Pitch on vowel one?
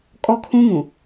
high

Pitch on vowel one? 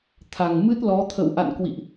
low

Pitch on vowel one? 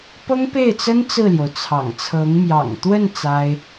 high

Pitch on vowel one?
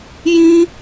high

